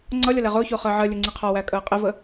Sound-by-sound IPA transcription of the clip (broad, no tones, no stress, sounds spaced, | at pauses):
ŋ͡ǀ ʌ lʲ ʌ l ɛ ʁ ʊː ç ʊː χ əː ʕ ɜ lʲ ʊ ŋ͡ǀ i qʰ ɔ w æ kʼ əː qʼ ɪ v ə